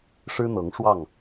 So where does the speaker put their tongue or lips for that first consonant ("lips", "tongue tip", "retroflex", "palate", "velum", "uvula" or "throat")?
retroflex